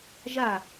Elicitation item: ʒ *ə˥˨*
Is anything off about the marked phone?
yes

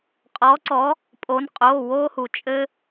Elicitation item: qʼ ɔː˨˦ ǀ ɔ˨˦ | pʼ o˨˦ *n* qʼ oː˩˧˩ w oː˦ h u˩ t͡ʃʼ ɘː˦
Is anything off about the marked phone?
no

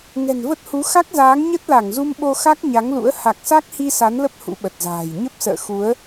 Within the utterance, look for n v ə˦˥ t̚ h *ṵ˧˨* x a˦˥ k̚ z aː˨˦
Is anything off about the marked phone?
yes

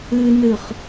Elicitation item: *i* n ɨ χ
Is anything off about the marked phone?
yes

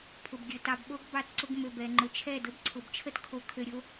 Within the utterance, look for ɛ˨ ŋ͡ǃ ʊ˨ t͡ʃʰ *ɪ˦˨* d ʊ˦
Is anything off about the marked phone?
yes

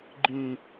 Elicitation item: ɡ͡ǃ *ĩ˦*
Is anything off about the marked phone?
no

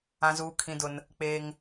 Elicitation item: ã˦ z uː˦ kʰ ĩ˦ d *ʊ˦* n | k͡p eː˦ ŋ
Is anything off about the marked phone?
no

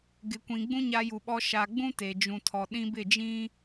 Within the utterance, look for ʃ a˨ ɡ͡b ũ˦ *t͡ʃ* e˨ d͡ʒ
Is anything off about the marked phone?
yes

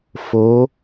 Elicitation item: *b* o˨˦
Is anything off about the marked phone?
yes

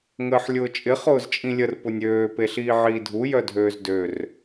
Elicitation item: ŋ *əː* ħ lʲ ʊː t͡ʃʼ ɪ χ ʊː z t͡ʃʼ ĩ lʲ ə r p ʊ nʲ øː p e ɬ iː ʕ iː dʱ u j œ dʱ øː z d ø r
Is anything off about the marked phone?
no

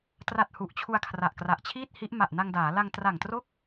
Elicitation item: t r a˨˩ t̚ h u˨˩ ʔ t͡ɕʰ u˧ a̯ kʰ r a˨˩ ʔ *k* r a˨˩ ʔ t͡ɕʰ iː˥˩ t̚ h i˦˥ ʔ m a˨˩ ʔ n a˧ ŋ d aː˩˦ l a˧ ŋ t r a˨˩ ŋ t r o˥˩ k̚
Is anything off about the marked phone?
no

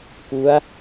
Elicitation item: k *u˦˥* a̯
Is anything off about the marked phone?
no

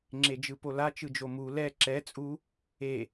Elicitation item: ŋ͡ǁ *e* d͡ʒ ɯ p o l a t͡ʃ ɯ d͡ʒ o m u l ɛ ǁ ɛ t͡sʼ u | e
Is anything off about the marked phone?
no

